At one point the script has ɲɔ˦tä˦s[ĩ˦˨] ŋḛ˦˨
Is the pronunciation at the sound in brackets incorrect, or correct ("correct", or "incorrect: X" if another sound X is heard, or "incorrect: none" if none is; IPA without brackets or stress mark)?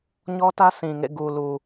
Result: incorrect: ĩ˨